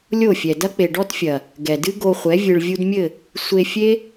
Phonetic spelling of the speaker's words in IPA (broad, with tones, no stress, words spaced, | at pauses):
lʲo˦˨fʲɛ˨ dɐ˦k͡pe˨ɖɔ˦tfʲɐ˨ | ɡɛ˨dɨ˦ ɡo˧χʷɛ˨˦ vʲɨ˨ɭvʲu˧dmʲɘ˦˨ | sʷe˧fʲe˦